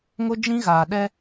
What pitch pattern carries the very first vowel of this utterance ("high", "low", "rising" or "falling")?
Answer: high